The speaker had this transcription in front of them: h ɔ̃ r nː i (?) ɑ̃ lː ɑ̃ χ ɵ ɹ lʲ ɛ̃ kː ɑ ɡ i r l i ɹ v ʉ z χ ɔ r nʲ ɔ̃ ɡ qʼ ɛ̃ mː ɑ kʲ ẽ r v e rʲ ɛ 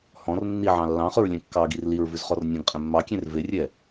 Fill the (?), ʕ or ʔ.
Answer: ʕ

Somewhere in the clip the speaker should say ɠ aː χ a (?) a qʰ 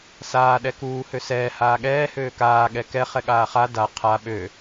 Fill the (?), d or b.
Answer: d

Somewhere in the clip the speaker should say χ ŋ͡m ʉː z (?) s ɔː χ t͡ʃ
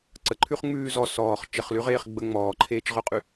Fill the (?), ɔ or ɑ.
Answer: ɔ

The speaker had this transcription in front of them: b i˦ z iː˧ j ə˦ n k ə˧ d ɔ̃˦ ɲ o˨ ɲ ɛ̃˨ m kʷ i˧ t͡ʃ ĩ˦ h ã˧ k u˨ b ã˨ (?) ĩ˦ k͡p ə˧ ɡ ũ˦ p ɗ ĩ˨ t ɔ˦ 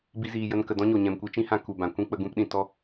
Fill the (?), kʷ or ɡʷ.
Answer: kʷ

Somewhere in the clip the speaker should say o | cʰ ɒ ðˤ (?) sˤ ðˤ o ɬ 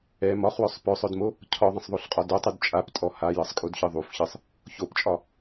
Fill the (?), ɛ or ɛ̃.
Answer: ɛ̃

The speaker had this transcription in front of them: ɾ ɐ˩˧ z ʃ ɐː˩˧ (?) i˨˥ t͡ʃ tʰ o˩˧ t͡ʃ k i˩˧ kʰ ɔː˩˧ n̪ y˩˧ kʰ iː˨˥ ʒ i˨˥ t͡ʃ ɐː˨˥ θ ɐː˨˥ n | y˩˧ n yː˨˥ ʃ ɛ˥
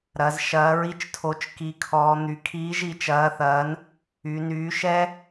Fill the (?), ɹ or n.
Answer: ɹ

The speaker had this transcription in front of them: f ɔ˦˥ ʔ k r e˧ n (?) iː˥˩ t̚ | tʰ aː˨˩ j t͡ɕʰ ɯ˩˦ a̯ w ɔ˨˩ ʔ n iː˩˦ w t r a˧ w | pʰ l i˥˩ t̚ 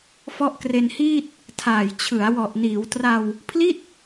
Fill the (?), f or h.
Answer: h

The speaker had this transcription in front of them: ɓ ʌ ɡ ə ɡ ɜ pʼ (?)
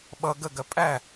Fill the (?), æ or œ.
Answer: æ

